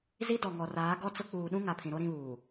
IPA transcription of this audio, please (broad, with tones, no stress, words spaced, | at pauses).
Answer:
zi˦dɔ˨ ŋɔ˨raː˨˦ ɡɔ˦t͡sʊ˦ k͡puː˨ɗũ˦ ŋa˨pʰĩ˨ɾo˦ ɾĩ˦βuː˨